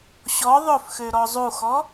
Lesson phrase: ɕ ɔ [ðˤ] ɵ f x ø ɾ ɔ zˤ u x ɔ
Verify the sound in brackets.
correct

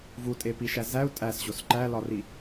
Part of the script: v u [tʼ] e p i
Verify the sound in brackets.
correct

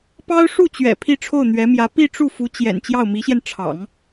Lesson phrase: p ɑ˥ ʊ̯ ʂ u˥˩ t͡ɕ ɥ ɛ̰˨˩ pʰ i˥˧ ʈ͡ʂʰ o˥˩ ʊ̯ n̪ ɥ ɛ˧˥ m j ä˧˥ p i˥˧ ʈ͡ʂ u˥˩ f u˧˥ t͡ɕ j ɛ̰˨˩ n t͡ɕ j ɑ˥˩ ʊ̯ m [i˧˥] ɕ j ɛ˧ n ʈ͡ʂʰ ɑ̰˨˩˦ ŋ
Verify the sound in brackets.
correct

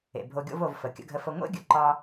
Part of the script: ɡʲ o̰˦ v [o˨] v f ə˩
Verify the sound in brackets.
correct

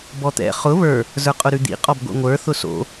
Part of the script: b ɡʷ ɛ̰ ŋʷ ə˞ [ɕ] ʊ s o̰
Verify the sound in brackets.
incorrect: θ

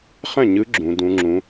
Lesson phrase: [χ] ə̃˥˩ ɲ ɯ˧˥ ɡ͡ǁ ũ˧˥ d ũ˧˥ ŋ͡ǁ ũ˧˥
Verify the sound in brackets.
correct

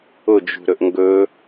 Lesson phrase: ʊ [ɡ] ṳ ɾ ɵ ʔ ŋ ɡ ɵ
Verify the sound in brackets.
incorrect: d͡ʒ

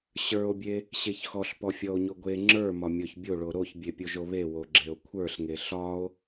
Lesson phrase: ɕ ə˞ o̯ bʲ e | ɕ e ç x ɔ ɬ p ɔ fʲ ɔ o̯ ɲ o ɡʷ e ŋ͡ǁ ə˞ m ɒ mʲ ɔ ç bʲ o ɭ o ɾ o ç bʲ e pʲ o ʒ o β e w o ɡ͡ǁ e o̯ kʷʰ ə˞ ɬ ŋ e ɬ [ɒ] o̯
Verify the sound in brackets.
correct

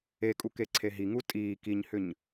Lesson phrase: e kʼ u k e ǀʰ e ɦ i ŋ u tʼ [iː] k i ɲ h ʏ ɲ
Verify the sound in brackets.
correct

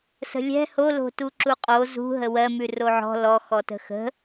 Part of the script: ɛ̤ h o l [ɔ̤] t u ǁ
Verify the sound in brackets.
incorrect: o̤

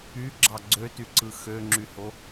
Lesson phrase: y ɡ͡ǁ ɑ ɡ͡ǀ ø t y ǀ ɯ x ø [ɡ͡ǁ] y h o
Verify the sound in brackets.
incorrect: ŋ͡ǁ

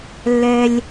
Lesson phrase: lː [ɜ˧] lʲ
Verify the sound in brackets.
incorrect: ɛ˧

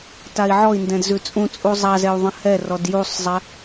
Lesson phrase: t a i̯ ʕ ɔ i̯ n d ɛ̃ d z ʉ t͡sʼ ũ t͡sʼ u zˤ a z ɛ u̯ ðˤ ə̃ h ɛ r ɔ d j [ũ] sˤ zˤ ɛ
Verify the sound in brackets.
incorrect: u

